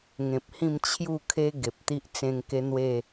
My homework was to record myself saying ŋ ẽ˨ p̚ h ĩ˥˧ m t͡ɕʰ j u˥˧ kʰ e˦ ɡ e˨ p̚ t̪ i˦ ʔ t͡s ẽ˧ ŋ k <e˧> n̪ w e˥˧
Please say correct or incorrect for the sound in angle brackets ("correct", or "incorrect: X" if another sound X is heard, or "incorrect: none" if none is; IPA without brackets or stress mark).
incorrect: e˦